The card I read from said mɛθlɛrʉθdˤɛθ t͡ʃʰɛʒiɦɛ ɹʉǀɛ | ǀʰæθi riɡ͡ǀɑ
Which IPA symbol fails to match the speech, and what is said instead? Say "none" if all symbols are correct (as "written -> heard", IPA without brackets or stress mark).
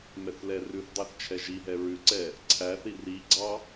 none